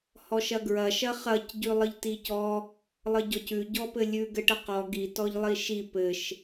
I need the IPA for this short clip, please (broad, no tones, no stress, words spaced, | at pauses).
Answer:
hɔʃɐɡɹɐ ʃɐχɐc ɟʉlˠəʎticɔ | lˠəɟɔcʉ ɟɔpɘlʲʉ ɡɘʈəqɔ ɡi tɔʎlˠiʃi pɘʃ